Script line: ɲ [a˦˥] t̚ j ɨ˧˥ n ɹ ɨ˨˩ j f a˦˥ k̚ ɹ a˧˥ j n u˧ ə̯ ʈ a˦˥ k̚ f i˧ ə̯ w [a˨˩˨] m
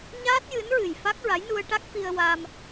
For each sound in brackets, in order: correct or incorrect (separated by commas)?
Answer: incorrect, incorrect